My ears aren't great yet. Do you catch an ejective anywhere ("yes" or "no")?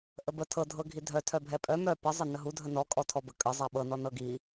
yes